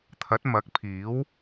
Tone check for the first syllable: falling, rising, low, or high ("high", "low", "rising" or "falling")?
rising